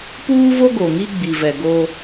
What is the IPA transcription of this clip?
p uː˦ v o˦ ɡ o˨ ŋ i˦ ɡ͡b i˨ v ɛ˨ ɡ o˦

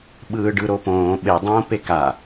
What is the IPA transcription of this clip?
ɓ ɯː ɖ ɯ ɾ o p õː ɓ e dˤ õː p e k a

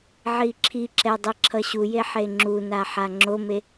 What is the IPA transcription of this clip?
ʕ i ǁʰ i ǁ ɛ dˤ i ǁʰ ʌ ɕ u j e ħ e ŋ͡ǁ u n a ħ a ŋ͡ǁ o m e

